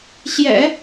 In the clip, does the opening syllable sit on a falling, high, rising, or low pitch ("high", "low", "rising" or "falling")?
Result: low